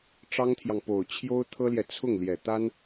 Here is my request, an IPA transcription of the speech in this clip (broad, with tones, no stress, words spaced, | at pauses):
ʈ͡ʂɑ˥ŋt̪ʰjɑ˨ŋpo˨˩ʊ̯ t͡ɕʰjo˥ʊ̯t̪ʰɤ˥ljɛ˨ t͡sʰʊ˥˩ŋljɛ˨˩t̪a˥n